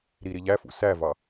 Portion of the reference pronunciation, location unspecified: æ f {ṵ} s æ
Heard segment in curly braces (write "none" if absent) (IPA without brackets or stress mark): ṵ